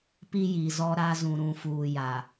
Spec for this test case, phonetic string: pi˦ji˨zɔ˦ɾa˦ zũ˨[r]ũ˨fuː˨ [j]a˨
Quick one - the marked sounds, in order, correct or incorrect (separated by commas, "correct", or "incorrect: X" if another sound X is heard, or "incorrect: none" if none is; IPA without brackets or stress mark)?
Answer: incorrect: ɾ, correct